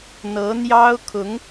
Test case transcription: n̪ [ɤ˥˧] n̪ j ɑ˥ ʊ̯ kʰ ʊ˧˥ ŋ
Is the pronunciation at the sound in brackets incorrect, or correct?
incorrect: ɤ˧˥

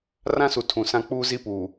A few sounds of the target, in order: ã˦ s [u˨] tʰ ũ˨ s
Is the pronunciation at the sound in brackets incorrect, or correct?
correct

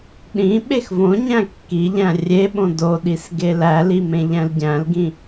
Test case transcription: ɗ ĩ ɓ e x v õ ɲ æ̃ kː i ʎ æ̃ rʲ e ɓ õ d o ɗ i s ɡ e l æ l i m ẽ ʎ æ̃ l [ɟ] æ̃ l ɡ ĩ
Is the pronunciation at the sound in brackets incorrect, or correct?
correct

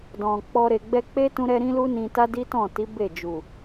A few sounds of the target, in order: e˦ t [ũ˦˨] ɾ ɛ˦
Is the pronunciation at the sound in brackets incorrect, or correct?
incorrect: ũ˦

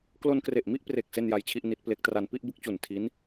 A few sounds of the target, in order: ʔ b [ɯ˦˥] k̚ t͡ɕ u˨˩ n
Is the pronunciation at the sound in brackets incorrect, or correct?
correct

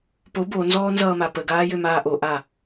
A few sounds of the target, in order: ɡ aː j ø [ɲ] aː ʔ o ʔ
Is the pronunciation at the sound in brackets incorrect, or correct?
incorrect: m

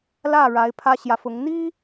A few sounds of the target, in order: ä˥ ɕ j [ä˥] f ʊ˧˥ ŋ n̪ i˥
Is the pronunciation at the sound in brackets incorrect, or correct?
incorrect: ä˨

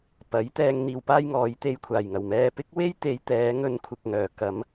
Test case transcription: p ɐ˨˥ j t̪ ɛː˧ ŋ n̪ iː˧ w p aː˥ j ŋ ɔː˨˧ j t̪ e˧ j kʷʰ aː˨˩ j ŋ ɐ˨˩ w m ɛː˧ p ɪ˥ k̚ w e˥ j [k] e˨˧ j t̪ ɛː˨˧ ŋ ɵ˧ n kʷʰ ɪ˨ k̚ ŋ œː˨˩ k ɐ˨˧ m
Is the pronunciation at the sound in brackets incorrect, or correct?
incorrect: t̪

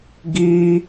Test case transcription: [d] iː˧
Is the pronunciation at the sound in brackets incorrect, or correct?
incorrect: ɡ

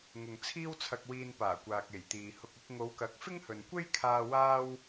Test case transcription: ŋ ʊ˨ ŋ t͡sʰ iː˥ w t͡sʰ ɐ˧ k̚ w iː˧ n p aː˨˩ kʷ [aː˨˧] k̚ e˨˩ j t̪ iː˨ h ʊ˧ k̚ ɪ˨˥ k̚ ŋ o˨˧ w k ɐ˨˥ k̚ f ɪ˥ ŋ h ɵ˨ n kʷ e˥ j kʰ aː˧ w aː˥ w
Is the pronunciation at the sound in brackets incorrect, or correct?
incorrect: aː˨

